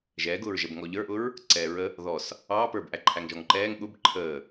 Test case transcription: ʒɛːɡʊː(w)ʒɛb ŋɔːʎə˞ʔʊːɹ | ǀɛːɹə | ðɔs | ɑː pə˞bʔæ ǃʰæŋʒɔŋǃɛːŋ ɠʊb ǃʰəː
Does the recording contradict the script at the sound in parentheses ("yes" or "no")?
yes